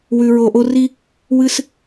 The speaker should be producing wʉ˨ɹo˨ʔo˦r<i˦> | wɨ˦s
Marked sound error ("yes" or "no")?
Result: no